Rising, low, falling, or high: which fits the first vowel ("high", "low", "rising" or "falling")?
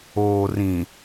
low